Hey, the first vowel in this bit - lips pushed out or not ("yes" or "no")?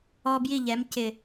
yes